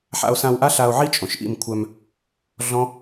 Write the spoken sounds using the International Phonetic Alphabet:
ħa̰˧o̯sã˧wʔa˦ɬa˧o̯ ʕi˦ t͡ʃʼõ˨ʃʔḭ˦˨mkʷʰœ˧m | ɮɔ̃˦

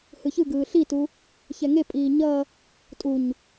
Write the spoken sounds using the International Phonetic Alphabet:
hɯçɯɡɯː ɬitu | çɛŋepʼiː ɲʌ | tʼuɲ

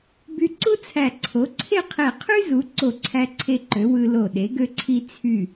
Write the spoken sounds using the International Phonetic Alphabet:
by˧ǀu˥t͡sʰæ˧˩ ǀʰo˩˧ǀʰe˥˧qʰe˧˩ qʰy˥zu˩˧ ǀo˧˩ǀʰæ˧ǀʰe˧ǃø˩˧ wɯ˧lo˧˩ ɗe˩˧ɡø˧ǀʰi˧ t͡sʰy˧˩

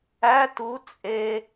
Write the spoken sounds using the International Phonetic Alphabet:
æ tu t͡sʼe

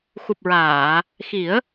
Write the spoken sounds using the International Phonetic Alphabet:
xu˨˩p̚ɹaː˨˩˨ | xi˨˩˦ə̯

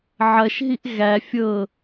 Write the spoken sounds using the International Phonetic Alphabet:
ʕɐʃɦiʔ ɣæ fʲɤ

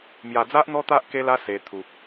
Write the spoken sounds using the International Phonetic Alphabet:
mja˧d͡za˦ʔ n̪ɔ˦t̪a˦ʔ ke˦la˦ se˧ t̪ʰu˨k̚

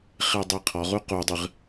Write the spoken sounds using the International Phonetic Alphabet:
χedˤiqʰɔʁu qudˤɨʁ

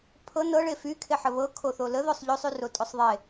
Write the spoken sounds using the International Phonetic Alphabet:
pʰɤ nɤɭe fykʰeħə βɤkʰoθo ləðosˤ ʎosˤyrotʼosˤ ðˤe

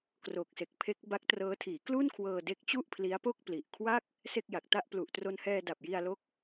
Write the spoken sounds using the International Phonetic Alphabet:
kro˨˩k̚se˨˩k̚ pʰe˦˥k̚ba˦˥k̚trɤː˦˥ tʰiː˩˦klu˥˩n kʰwɤː˧de˦˥k̚t͡ɕu˥˩ʔpʰli˦˥a̯ po˥˩k̚pli˨˩ʔkʰwa˥˩k̚ | se˥˩k̚ja˨˩k̚ta˥˩ʔ plu˨˩ʔtro˧nhɛː˧ da˨˩p̚ji˧a̯lo˦˥k̚

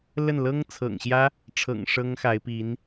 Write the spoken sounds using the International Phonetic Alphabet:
lə˥˩n lɤ˥ŋt͡sʰɤ̰˨˩ŋɕjä˥ | ʈ͡ʂʰɤ̰˨˩ŋ ʂɤ˥ŋxa˧˥ɪ̯pi˧˥n

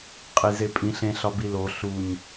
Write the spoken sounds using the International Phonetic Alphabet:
qʼizepʼĩɬ ẽɬ ɒbilo ɬuɲ

